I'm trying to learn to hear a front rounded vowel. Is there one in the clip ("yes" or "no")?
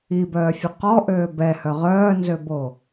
yes